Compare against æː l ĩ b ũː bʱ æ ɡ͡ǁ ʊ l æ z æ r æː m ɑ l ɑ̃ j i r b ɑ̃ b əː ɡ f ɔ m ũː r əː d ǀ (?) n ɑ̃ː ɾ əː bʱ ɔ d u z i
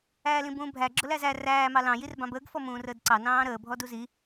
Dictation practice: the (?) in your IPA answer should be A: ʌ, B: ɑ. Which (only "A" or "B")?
B